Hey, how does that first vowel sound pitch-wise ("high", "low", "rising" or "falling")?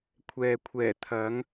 low